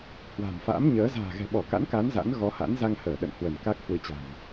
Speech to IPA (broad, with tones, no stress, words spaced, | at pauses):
hwa̤˨˩mfa̰˧˥mɲəː˨˦ za̤ː˨˩ɣɛ̤˨˩ɓɔ˧˩ ka̰˧˥nka˨˦n za̰˧˥nɣɔ˨˦ha̰˧˥n za˧ŋhəː˧˩ ɗə̰˧˨n hwə˧˩n ka˦˥k̚ hwɨ˨˦t͡ɕa̤˨˩m